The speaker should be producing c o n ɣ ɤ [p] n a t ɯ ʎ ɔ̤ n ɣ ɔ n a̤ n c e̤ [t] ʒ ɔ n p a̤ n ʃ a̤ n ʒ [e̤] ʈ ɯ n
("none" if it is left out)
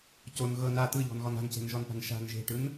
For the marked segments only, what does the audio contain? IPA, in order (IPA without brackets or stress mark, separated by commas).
none, n, e̤